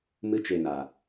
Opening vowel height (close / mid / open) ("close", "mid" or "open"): close